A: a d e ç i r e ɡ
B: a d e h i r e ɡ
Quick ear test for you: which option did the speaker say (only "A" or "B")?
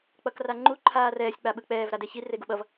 A